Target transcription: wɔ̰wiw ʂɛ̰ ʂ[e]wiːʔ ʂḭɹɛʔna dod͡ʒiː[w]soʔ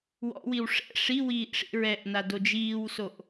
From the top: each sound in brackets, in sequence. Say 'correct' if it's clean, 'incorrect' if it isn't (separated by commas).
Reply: incorrect, correct